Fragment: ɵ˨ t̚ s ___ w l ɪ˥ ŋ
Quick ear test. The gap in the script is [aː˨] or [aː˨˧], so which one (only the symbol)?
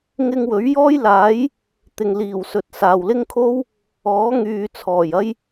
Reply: aː˨